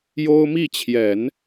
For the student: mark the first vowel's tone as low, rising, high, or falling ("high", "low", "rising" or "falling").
high